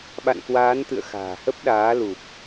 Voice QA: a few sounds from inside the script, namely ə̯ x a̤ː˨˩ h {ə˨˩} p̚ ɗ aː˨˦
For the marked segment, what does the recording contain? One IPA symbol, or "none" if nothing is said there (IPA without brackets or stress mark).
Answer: ə˦˥